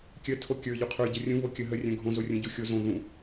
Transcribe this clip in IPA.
kʲ œ tʰ o kʲ ə˞ ʎ u qʰ ə˞ ɟ ə rʲ ũ β o kʲ ə ɦ ə rʲ œ̃ ɡʱ õ z o rʲ ũ ɟ u xʲ o z õ ð ũ

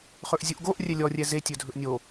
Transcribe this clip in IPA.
χ ɵ ʔ zʲ u ʔ ɡ o ʔ rʲ ɛ lʲ ɔ rʲ ɛ z e tʲ ɵ dʱ ɵ ʔ nʲ o

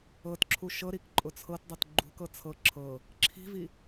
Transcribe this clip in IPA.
ɤ t ǁʰ u ʃ ɤ ɾ i k ǃʼ ʊ t͡sʰ ɤ t dˤ ɤ t ɡ͡ǃ ṳ k ɤ t͡sʰ ɤ ǁʰ ɤ | ǁʰ i̤ v i

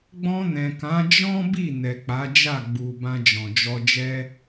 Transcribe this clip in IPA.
ɡ͡b ɔ̃˧ n ɛ̃˨ k ã˨˦ d͡ʒ ɔ̃˦ b i˦˨ n ɛ˨ k͡p a˨˦ d͡ʒ a˦˨ ɡ͡b u˨ b ã˧ d͡ʒ ɔ̃˨ d͡ʒ ɔ˧ d͡ʒ ɛ˧

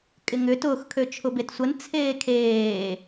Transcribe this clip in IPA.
kʼ ɪ ŋ ʏ t ʊː x kʰ ø t͡ʃʰ ʊ b e t sʷ ə n t͡sʰ eː kʰ eː

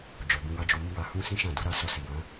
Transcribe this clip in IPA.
d͡ʒ ɔ˨ b ũ˧ w a˦ d͡ʒ o˧ m i˦ w a˧ h ũ˦ s ĩ˦ ʃ ã˦˨ d u˨˦ ɾ a˧ s ɔ˧ s i˨ w ã˨˦

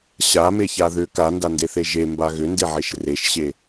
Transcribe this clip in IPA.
ɕ a m e ç a ð ʏ k a n d a n d e θ e ʒ e m b a ɣ ʏ n d e ʕ e ʃ r e ʃ ɕ e

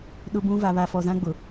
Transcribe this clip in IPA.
ɗ ʊ˦ b ũ˦ v a˨ β a˨ f ɔ˨ z ã˦ ɡ͡b ʊ˨

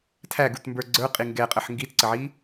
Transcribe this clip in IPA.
tʰ æ ɡ u t m b ə˞ ɡ͡ǀ ə˞ qʼ i ŋ ɡ ɛ qʼ ə ħ ŋ ɡ i t ǀ ə ʕ i

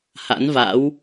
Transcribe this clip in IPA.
h a̰˧˥ n v a̰˧˥ w

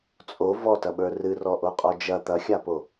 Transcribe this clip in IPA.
t͡sʼ o v ɔ t ɐ ɓ ə˞ r ɨ r ɔ ʔ o qʼ ɔ d͡ʒ ɐ t̪ ɐ xʲ a p o

